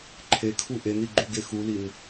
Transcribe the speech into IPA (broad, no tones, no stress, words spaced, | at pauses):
ǃʰekʰu ʔeniɡ͡ǃuɡe xulin